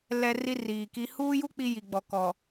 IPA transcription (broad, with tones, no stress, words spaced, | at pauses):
lɛ˦ri˦riː˨ki˦ huː˦ju˦ k͡pi˦ji˨ ɡ͡bɔ˨kɔ˨